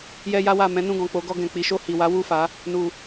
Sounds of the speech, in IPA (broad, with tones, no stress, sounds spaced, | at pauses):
j ɛ˧ j a˧ w a˨ m ɛ̃˨˦ n ũ˦˨ ɡ ɔ̃˨ k͡p o˨˦ ɡ ɔ˧ ɡ ɛ̃˨ k͡p i˨˦ ʃ o˦˨ h i˨ w a˨˦ w u˦˨ f a˨˦ | n u˨